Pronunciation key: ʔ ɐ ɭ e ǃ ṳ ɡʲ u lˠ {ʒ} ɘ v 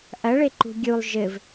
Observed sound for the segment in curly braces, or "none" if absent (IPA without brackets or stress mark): ʒ